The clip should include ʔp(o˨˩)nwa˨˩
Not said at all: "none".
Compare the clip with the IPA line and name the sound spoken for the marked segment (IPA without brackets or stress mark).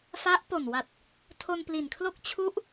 o˨˩